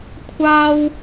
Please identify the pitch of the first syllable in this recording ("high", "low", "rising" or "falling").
high